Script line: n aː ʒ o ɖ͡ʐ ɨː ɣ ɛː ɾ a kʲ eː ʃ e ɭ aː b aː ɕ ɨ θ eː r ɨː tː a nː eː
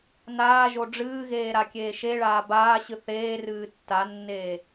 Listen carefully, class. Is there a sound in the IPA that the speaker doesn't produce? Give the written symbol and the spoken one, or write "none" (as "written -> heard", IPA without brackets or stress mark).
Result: ɛː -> eː